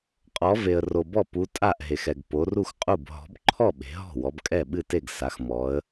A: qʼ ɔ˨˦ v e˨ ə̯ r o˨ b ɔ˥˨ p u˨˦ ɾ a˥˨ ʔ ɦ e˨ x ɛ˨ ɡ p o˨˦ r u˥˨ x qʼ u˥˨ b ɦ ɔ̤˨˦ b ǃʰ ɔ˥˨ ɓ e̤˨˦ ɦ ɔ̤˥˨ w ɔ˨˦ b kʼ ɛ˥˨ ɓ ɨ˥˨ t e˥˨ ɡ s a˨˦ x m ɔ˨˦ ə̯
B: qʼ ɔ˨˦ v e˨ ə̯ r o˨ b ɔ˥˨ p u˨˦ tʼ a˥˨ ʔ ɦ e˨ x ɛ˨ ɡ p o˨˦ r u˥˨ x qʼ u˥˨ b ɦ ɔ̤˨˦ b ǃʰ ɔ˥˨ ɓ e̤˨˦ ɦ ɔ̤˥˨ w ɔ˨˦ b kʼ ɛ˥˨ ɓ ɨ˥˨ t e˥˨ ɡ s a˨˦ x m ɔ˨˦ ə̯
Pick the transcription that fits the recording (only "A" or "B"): B